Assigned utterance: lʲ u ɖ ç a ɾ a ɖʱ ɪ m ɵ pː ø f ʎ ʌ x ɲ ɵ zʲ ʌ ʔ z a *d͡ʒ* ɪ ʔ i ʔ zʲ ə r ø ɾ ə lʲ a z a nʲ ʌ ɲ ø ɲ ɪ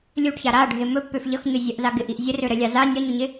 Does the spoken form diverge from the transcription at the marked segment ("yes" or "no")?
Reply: yes